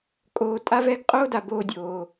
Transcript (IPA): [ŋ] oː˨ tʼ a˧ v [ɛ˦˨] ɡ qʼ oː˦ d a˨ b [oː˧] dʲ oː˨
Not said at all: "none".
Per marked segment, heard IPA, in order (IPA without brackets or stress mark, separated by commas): kʼ, ɛ˦˨, oː˧